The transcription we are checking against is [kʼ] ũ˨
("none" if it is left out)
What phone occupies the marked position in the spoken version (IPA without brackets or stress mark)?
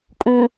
kʼ